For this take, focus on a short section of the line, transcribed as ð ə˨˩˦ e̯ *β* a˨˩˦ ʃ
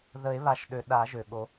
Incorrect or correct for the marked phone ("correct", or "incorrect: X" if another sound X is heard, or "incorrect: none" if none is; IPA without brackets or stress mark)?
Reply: correct